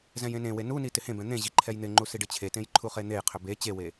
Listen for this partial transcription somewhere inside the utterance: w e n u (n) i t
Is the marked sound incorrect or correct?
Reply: correct